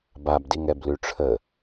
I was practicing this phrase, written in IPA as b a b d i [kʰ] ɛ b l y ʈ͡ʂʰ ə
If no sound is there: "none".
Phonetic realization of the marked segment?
ŋ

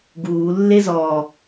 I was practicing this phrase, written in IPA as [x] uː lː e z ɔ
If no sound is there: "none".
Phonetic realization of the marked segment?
ɡ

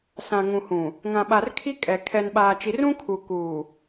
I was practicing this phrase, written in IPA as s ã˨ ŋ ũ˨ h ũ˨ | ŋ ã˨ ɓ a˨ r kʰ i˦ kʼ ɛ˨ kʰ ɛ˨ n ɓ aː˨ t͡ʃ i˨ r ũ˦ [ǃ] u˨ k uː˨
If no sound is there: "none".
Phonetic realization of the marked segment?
kʰ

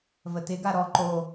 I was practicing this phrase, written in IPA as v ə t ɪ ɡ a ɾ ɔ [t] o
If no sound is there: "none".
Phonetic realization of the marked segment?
ǃ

